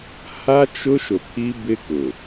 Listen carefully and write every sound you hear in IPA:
h a˦ t͡ʃ ʊ˦ ʃ ʊ˨ pʰ i˦ b ɪ˦ k ʊ˨

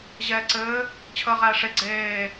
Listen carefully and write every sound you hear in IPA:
ʑ ɛː ǀ ɘː | t͡ɕʰ əː ʁ æː ʂ e ɡ͡ǀ eː

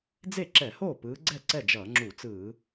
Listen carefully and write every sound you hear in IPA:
d͡z e˥˩ ǁ ɛ˧˩˧ h oː˥˩ p ɯː˨˦ ɡ͡ǀ ɛ˥˩ ǀ ɛ˥˩ d͡ʒ ʌː˧˩˧ ŋ͡ǁ u˧˩˧ t͡s ɯː˧˩˧

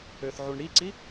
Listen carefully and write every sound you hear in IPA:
ø θ ʕ u ɳ ɽ i ǀ i

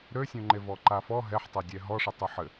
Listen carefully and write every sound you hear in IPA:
ɾ ø sʲ õ ŋ͡ǃ e v ɔ ǃ a f ɔ ɦ ɛ ħ tˤ a dʲ ɛ ɦ ɔ ʂ ɛ tˤ ɛ ħ ɘ

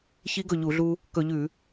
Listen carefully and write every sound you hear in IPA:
ç i˧˥ ɡ ɵ˧˩ ʎ u˧˩˧ ɮ u˧ | k ɵ˧˩˧ ʎ ʉ˧˩˧

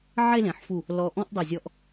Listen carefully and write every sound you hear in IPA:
ʕ e˥˧ l ẽ˩˧ ħ f u˧˩ | l ɔ˧ ʔ ɔ̃˥ ʔ dˤ i˧˩ zʲ ɔ˧ ʔ

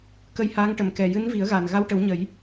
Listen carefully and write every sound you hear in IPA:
k ə˧ j h aː˧˥ ŋ ʈ ə˨˩ m k ɛ˨˩ j ɨ˧˥ n v i˨˩˦ ə̯ ɣ a˨˩ n ɣ a˧ w ʈ ə˨˩˦ w ɲ ə˨˩˦ j

